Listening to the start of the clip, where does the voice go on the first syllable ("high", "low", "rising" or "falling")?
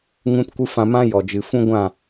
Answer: high